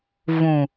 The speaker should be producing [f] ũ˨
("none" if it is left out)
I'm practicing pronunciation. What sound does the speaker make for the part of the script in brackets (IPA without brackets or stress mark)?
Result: v